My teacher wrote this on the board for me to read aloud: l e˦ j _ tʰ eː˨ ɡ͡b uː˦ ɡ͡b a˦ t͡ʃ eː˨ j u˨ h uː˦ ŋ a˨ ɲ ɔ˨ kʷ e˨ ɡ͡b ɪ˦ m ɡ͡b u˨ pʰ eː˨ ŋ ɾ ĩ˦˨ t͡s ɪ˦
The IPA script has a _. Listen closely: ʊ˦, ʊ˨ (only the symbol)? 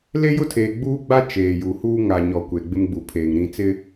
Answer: ʊ˦